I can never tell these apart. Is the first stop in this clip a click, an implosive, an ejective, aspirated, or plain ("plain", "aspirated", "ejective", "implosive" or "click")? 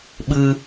implosive